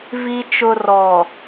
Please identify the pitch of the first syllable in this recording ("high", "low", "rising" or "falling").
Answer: low